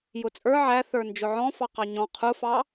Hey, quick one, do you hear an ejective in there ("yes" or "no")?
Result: yes